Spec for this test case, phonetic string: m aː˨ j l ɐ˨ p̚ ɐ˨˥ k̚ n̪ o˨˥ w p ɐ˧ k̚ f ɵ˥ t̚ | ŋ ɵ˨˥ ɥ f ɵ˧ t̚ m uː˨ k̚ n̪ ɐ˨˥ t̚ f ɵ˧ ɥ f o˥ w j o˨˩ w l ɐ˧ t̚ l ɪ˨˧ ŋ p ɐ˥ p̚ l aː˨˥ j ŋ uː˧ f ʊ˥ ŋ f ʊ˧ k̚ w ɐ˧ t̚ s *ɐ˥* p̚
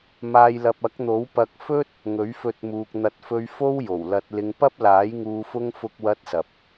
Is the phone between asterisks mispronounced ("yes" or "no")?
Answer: yes